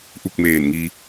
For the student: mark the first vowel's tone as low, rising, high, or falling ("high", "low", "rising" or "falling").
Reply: falling